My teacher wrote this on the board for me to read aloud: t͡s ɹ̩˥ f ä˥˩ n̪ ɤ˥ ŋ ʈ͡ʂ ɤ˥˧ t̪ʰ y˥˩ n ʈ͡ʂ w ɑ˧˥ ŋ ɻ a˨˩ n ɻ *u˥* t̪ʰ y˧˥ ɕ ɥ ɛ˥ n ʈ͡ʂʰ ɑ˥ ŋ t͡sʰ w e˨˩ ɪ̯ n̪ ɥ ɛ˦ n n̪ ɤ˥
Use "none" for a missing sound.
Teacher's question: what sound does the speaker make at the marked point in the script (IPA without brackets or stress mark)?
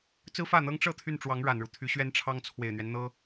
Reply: u˦